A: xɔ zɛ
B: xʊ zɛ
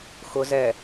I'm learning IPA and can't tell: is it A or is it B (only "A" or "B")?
B